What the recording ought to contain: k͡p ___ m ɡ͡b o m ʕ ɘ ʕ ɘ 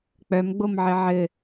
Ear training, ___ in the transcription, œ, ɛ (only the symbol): œ